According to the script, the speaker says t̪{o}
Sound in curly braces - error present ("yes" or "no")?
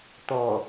yes